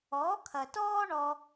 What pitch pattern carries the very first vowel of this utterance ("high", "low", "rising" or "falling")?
rising